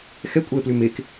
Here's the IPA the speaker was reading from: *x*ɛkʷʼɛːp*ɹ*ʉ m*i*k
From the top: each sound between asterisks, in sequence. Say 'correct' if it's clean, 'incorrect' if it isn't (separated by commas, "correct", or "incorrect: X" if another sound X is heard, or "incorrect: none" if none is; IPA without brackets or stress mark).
correct, incorrect: l, incorrect: e